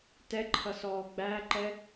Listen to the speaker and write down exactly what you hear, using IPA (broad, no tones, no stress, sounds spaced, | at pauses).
t ɛ ǃʰ ʌ s ɔː ɡ͡b æ ǃ ɛ